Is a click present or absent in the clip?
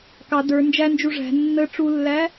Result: absent